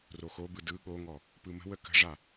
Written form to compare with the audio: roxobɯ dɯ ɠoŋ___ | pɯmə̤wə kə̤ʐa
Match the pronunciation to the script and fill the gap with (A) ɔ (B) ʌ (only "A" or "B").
A